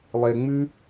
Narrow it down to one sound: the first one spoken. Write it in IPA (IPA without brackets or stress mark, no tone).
lˠ